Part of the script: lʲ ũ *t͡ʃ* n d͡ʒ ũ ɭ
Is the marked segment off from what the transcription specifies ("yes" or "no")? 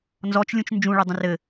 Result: no